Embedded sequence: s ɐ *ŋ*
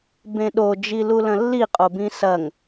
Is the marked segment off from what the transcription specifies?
no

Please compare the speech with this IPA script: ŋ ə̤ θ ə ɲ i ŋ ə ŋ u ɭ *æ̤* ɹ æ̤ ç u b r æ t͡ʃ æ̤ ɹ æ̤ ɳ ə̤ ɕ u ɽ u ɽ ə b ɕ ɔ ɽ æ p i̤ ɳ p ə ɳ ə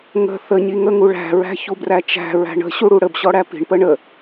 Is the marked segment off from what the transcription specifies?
no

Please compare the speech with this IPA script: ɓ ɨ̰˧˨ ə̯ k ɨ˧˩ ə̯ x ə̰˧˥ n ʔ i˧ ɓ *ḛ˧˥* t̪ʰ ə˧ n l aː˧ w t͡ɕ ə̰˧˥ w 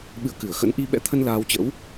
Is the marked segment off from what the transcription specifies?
yes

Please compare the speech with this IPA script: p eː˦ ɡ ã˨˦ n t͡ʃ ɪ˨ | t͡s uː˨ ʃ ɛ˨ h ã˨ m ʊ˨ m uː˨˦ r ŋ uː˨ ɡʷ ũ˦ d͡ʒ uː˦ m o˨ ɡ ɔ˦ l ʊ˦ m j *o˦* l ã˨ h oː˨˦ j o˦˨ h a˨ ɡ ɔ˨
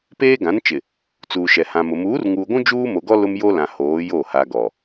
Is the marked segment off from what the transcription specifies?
no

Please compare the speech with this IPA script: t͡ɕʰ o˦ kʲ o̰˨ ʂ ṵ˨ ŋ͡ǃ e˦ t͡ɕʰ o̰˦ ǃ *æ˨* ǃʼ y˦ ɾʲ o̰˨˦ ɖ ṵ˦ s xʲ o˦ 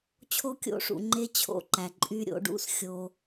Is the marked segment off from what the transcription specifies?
no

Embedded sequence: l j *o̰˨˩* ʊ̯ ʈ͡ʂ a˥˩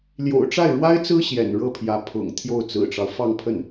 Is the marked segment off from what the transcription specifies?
no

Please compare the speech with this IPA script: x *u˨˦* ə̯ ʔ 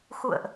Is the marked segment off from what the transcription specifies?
yes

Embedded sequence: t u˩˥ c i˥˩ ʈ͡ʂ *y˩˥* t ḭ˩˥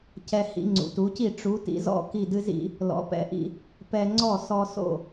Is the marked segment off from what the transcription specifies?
yes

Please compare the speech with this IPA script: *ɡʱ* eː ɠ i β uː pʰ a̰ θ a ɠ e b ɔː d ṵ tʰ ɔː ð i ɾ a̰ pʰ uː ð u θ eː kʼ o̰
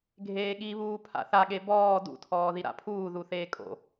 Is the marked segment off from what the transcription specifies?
no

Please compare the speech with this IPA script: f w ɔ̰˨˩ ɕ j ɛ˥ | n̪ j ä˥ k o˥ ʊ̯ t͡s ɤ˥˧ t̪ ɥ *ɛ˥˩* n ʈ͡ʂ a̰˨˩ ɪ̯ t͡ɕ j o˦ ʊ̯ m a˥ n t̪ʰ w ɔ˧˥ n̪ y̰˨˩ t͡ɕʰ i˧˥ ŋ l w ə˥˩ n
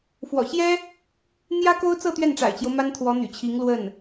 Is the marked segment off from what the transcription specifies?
no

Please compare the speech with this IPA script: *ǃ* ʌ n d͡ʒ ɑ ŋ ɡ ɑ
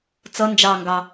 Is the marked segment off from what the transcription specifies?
yes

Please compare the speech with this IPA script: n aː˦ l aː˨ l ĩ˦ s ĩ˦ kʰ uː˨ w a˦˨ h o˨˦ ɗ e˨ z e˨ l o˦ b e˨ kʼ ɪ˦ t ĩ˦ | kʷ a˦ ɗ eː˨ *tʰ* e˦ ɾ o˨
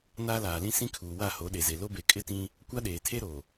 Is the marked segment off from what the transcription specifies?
no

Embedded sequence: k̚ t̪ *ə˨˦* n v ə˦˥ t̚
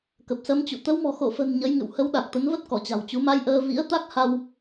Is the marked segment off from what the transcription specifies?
no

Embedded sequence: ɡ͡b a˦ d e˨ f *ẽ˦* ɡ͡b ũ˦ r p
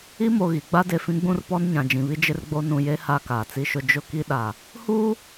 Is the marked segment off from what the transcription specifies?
yes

